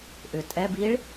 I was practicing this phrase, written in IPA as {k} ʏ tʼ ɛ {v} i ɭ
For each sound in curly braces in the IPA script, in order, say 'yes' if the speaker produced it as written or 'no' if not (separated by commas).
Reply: no, no